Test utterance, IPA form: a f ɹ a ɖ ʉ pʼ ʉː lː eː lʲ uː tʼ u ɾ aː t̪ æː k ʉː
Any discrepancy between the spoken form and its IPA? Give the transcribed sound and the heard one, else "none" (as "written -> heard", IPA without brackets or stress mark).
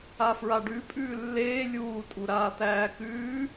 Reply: none